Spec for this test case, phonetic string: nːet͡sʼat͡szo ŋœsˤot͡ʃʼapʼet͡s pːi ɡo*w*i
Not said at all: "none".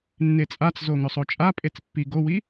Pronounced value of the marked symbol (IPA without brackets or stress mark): w